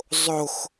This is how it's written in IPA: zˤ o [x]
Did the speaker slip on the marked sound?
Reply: no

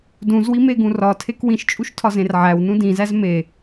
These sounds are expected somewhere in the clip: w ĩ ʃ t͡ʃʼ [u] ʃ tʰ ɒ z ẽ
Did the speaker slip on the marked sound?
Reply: no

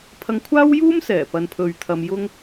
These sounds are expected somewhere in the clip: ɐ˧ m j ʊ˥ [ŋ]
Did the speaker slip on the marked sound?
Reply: no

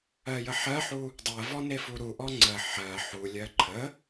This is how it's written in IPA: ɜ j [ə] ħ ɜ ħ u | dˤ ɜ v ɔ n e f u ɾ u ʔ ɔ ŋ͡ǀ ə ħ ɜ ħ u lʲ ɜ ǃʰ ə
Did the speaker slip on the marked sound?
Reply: no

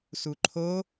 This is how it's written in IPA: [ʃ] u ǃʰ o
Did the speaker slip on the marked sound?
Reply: yes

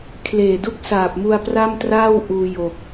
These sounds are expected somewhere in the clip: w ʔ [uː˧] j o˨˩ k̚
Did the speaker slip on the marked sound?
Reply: no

